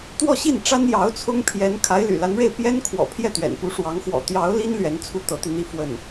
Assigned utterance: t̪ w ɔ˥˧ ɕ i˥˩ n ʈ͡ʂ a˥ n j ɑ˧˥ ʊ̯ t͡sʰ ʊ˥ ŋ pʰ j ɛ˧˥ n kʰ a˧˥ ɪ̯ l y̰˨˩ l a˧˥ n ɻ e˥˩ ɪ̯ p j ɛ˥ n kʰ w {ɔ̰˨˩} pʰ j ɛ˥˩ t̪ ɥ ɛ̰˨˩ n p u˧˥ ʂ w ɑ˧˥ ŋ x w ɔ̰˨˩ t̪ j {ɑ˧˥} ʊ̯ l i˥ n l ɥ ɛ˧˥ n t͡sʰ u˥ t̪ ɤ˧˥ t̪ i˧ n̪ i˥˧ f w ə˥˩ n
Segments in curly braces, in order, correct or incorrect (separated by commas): correct, correct